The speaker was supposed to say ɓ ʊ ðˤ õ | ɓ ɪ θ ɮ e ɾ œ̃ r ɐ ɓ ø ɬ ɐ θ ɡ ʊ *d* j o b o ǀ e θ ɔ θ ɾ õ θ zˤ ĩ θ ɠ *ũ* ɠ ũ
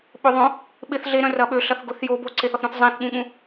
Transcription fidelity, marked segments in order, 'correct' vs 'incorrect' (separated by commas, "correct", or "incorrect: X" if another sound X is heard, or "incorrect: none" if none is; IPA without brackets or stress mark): incorrect: θ, correct